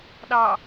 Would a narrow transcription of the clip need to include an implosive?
yes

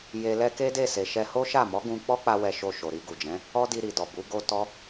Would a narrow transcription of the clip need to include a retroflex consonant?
no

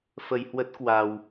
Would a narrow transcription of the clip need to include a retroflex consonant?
no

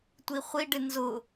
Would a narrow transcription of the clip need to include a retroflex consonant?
yes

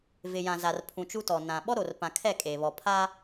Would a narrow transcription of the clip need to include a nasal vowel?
yes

